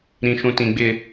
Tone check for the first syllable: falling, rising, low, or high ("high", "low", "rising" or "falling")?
low